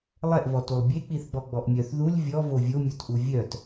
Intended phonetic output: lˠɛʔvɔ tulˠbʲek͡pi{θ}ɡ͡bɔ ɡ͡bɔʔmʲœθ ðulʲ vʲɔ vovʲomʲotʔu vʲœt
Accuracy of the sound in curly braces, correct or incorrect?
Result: correct